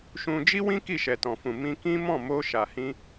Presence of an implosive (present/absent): absent